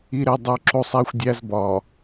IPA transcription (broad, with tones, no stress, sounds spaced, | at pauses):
i˨ ɾ e˨ dˤ o˨ ǁ o˦ sˤ æ˦ xʷ dʲ æ˦ z b ɒ˨